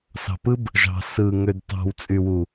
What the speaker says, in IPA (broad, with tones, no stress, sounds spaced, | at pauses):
s ɑ̤˨ p ɯ˦ b | ʒ ɑ̤˨ s ɯ˨ ŋ ø˨ d t ɑ̤˨ w t͡sʼ y˨ w u˨